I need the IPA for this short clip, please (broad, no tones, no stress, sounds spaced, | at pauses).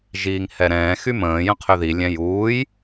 ʒ iː ŋ h ɛ ɾ ɛ̃ː x y m ə̃ː j ə̃ qʰ ø ð i lʲ ɛ̃ j uː j